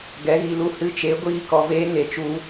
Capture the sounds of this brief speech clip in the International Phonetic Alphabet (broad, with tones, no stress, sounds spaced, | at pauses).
ɡ ɛ˨˦ ɣ i˨ l u˧ h ɨ˧ t͡ʃ e˨˦ ɡʷ iː˧ k ɔ˨ v eː˦ ŋ e˨ t͡ʃ u˧